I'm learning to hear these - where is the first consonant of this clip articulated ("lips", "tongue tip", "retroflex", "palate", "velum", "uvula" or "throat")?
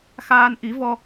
velum